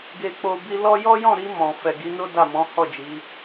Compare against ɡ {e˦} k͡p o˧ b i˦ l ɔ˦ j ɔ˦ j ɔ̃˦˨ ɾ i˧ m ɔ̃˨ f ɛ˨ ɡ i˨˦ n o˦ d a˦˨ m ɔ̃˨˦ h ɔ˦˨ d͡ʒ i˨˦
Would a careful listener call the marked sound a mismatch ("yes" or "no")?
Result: yes